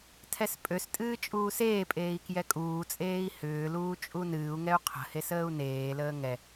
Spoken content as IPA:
tʰɛspʼøstʼɨː t͡ʃʼuːseːpʼeːi̯ kjɛkʼuːt͡sʼeːi̯ hʏːluː t͡ʃʼunɨːu̯ŋɛu̯ qʰə̤hes əːu̯neːləː ŋɛ

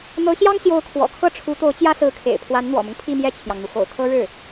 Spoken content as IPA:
n̪ɤ˧˥ɕjɑ˥ŋ ɕjo˧˥ʊ̯kʰwɔ̰˨˩ kʰɤ˥˩ʈ͡ʂʰu˧˥ t̪o˧˥ʊ̯t͡ɕjä˥sɹ̩˧˥kʰḛ˨˩ɪ̯ pʰwa˧˥nn̪wɔ̰˨˩mʊ˦ŋ pʰi˥˧mjɛ˥˩t͡ɕʰjɑ˩ŋn̪u˩ xo̰˨˩ʊ̯kʰɤ˥ ɻɻ̩˥˩

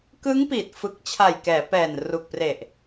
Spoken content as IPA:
kɯ˦˥ŋpiː˨˩t̚ fɯ˨˩k̚ t͡ɕʰa˨˩j kɛː˩˦pɛː˨˩nru˨˩k̚ pre˨˩ʔ

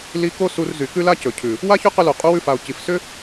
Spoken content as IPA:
li˧ ko˦su˧r zy˨kʉ˦ la˦cɵ˨cʰʉ˨ | wa˦çɵ˦qʏ˧lo˨ qʼu˧wʉ˧fa˨o̯ ci˨fsʏ˦

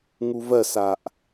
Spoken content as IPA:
ŋuvɜsaʔ

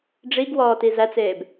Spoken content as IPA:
ɖ͡ʐiɡ wɔːtizæt͡seːb

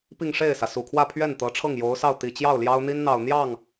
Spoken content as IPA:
pi˥˧ŋʂe˥˩ɪ̯sä˩ su˨˩kʰwä˥˧pʰɥɛ˥˩n t̪ɤ˧˥ʈ͡ʂʰɤ˥˩ŋjo˧˥ʊ̯sɑ˥˩ʊ̯ t̪i˨˩t͡ɕjɑ˥˩ʊ̯ ljɑ˥ʊ̯n̪i˥nn̪ɑ˨˩ʊ̯ n̪jɑ˥˩ŋ

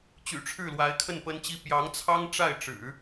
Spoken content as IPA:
t͡ɕy̰˨˩ʈ͡ʂʰɻ̩˥˩lwa˧˥ɪ̯kʰə˥˩n pə˥nt͡ɕi˥ pjɑ˧˥ŋt͡sʰɑ˥ŋ ʈ͡ʂa˥˩ɪ̯ʈ͡ʂɻ̩˨˩˦

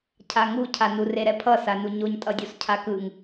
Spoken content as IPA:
cʰaŋu cʰanur eɾɛpʰʌ sanuɲoɲtʼʌ dʲoscʰakɯŋ

